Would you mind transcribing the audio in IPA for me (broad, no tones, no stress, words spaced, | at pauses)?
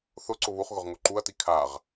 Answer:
θʊǀʊ βuχɣʊʁ ŋoǃuɐ̯ti kʰaʁ